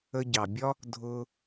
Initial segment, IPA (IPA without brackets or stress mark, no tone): ə